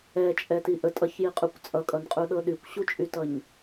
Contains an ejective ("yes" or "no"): yes